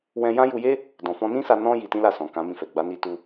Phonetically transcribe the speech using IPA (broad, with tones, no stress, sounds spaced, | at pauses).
w ɛ̃˧ j ã˦ j u˧ j e˦ | d ɔ̃˨ f ɔ̃˧ n ĩ˦ s a˧ n ɔ̃˧ j i˧ t ĩ˦ l a˦˨ s ɔ̃˨ k ã˨˦ m ĩ˧ f ɛ˨ ɡ͡b a˨˦ n i˧ t u˧